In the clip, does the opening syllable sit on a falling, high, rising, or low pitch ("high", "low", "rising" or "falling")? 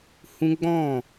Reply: high